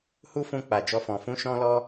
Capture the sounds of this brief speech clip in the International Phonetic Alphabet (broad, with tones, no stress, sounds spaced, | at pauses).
h u˦ f ũ˧ k͡p a˨ d͡ʒ ɔ˧ f ɔ̃˨ f ũ˨˦ ʃ ɔ̃˧ l ɔ˧